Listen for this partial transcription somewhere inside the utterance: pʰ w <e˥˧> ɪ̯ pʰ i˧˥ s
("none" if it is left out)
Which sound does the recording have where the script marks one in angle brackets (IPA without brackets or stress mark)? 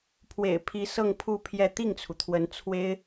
ḛ˨˩